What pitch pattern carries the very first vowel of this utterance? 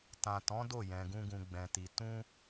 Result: low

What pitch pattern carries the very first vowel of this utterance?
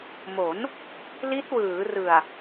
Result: rising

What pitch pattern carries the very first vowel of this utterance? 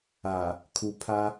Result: low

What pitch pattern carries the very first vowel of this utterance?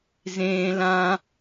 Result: high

